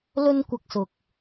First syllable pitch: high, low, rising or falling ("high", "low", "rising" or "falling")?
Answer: high